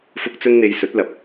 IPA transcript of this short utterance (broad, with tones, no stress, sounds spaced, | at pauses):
f ʊ˧ k̚ t͡s ɵ˥ n n̪ e˧ j s ɵ˨˥ t̚ l ɐ˨˥ p̚